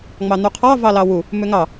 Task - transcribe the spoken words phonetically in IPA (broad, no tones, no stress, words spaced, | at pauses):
ŋ͡mɑn̪uqʰɑ vɑlɑwu | mʏŋɑ